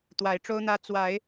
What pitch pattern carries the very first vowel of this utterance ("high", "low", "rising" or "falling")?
rising